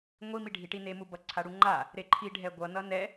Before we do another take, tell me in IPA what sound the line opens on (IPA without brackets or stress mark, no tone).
ŋʷ